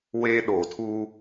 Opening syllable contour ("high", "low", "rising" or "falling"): high